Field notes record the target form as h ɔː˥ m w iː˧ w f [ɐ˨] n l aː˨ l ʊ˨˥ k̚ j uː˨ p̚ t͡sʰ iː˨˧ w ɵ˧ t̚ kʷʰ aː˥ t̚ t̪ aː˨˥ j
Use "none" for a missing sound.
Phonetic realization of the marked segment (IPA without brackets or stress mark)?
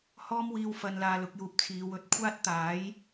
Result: ɐ˨